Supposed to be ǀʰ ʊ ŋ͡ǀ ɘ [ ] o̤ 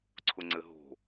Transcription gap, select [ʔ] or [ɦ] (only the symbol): ɦ